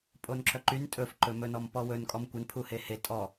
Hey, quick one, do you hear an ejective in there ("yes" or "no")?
yes